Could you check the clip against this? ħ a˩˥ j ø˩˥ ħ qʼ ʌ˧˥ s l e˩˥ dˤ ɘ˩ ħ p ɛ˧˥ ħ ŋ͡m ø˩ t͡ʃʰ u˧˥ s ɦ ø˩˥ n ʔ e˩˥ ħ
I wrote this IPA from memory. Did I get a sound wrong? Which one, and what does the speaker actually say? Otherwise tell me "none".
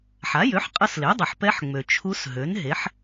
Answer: ʔ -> ɦ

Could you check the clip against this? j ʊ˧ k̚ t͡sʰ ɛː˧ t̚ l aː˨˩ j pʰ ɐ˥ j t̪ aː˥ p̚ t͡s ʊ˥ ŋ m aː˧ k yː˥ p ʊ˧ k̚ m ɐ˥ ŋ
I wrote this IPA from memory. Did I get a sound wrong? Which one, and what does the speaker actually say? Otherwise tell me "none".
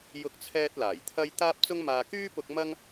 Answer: pʰ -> t̪ʰ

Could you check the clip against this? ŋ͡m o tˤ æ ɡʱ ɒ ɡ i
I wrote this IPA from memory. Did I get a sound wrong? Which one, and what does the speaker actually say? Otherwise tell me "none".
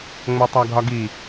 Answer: none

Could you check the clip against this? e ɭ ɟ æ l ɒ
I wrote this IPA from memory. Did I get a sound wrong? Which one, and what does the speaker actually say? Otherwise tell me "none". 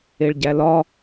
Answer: none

